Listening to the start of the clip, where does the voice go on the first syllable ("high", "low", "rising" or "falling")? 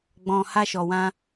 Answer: low